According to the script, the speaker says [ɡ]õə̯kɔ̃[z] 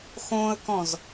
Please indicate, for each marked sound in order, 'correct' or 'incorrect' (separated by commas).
incorrect, correct